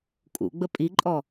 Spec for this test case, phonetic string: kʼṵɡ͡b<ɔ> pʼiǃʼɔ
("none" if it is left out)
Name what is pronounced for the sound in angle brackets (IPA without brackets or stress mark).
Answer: ə